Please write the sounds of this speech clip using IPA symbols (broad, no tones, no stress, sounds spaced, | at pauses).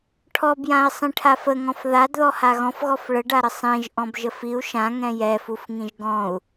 ʈʰ ɔ b j ã i̯ sˤ ĩ ʈʰ a f ə ŋ ɔ̃ f ð a d ð ɔ h a ɣ ɔ̃ f ɣ ɔ f ɭ ə ɖ a ɾ ə sˤ ĩ ʒ ʔ ɔ̃ b ʒ ə f i u̯ ʃ ã ŋ ɛ̃ j ɛ f u f ŋ ĩ ʒ ɡ ɔ̃ u̯